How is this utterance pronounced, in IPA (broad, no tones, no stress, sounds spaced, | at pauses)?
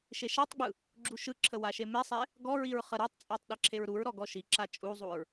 ʃ e ʃ a tˤ ɡ͡b ɯ | ɡ͡ǁ u ʃ ɯ ǁʰ ə w a ʃ e m e sˤ e | ɡ ɔ ɹ i ɹ χ ə ɾ a tˤ t͡sʼ ɔ tˤ ɗ e ǁʰ e ɹ ɾ u ɹ ɾ ɔ ɡ ɔ ʃ i ǁ a t͡ʃʼ u zˤ u ɹ